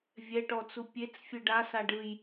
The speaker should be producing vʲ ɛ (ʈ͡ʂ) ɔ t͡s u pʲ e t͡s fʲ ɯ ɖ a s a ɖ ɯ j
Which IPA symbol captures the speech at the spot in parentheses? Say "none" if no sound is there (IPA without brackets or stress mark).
ʈ